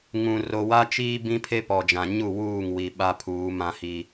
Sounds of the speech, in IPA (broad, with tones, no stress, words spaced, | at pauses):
ŋũ˨ ro˨wa˦t͡ʃiː˦ bĩ˦pʰe˦pɔ˨d͡ʒã˨ ɲu˦˨ wuː˦˨ŋwi˨ ɓa˦pʰuː˨˦ mã˦hi˦